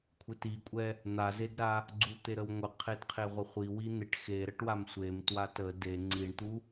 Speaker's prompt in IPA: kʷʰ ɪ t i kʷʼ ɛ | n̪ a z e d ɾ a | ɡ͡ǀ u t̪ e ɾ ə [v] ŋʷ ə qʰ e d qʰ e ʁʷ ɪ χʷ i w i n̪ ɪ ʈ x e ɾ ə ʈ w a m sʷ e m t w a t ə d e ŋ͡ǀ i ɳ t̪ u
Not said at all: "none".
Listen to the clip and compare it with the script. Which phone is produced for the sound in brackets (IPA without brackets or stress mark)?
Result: w